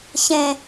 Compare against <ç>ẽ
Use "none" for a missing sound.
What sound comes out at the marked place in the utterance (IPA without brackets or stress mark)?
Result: ç